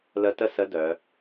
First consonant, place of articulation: alveolar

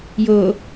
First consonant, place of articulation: palatal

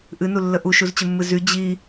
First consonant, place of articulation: glottal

